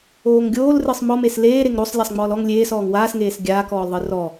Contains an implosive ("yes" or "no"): no